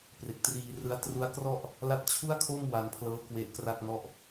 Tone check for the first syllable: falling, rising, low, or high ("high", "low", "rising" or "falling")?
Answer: low